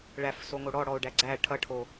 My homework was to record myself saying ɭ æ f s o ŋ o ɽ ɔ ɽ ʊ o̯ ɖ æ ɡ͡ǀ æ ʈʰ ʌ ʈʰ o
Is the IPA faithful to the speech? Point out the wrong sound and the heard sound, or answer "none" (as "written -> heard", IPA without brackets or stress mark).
ʊ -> ɔ